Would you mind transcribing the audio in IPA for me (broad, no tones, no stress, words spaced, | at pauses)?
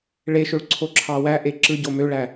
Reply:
ɭeʃøɭ ǀʰoǁʰɑwæʔe ǁɯɟo møɭæ